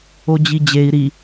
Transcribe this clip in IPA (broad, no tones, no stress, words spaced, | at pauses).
od͡ʑid͡ʑei̯ ɾi